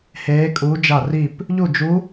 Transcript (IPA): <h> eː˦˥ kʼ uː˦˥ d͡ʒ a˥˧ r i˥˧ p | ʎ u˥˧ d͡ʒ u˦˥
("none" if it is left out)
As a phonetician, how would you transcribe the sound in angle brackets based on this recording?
h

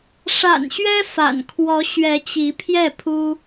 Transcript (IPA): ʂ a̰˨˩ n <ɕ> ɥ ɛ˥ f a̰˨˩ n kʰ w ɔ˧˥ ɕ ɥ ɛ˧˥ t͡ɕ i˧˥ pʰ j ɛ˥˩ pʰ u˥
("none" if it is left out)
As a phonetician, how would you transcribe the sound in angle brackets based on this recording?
ɕ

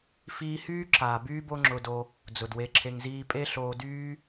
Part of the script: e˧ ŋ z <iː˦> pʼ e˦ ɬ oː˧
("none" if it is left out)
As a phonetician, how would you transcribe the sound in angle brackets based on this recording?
iː˦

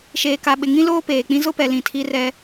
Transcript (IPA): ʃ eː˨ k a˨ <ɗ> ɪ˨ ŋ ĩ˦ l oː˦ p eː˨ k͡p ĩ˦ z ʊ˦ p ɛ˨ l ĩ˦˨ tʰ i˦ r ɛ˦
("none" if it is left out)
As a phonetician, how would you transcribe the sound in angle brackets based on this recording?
ɓ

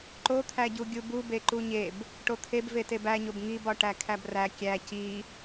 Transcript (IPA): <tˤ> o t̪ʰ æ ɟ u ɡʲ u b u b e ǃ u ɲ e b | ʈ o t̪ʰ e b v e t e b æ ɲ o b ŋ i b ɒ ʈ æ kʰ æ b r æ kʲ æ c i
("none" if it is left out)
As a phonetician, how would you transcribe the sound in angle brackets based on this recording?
ǃ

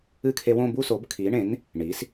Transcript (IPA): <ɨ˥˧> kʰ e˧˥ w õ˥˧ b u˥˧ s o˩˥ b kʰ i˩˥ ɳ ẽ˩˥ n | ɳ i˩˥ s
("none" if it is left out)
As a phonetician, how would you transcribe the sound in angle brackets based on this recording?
ɨ˥˧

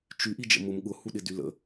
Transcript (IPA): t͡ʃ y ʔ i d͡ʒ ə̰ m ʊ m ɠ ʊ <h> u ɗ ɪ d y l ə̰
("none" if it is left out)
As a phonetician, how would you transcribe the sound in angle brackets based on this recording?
h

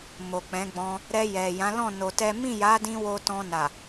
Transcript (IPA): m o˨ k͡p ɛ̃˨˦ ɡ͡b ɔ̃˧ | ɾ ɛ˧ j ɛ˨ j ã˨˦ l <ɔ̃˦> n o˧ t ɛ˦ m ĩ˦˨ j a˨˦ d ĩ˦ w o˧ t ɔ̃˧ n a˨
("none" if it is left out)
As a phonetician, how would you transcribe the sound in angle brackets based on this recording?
ɔ̃˦˨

